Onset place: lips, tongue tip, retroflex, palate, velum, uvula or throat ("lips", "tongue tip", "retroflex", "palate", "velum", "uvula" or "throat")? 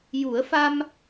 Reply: palate